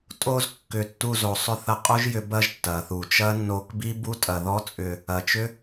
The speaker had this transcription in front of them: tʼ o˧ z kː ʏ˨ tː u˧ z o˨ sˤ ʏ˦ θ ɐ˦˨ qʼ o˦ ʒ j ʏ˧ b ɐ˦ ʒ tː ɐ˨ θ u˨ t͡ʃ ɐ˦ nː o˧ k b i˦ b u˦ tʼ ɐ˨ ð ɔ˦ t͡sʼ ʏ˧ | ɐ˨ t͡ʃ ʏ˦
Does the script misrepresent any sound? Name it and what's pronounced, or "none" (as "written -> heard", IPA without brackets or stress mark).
none